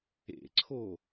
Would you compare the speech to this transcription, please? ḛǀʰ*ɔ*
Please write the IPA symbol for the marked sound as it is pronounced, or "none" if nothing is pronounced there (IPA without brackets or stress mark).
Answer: o